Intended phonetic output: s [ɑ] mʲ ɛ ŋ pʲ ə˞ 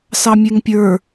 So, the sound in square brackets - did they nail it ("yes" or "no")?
yes